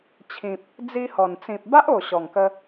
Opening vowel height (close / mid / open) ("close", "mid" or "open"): close